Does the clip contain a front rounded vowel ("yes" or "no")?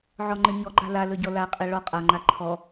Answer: no